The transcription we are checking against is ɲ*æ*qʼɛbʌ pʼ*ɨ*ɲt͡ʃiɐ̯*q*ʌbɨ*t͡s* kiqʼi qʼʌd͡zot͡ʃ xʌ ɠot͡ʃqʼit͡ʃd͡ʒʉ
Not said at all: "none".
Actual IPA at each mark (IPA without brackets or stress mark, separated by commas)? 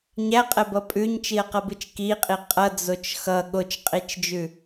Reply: æ, ʉ, q, t͡ʃ